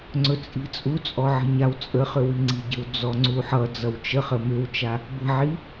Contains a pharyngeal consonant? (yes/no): yes